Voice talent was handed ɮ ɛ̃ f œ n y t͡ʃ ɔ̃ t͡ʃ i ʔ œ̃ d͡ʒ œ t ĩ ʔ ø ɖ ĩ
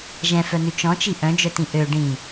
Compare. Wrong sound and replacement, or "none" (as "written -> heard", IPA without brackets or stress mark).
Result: ɮ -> ʒ